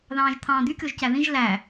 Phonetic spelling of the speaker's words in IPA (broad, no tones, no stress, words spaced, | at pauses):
ðɑ̃ːʒt̪ʰɑ̃ːd̪ykʲoʒ cæðĩʒ læ